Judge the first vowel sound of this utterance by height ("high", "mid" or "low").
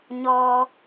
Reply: mid